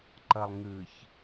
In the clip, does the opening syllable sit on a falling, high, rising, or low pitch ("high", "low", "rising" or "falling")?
low